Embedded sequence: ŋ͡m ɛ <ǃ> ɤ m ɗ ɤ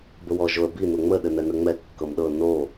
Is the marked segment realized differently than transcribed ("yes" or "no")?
yes